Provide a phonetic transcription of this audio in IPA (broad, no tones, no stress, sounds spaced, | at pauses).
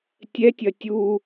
tʲ ɛ tʲ ɐ tʲ u